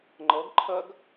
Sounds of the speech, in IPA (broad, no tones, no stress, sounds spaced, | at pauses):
ŋ͡ǃ ɤ ɡ ǃʰ ə ɡ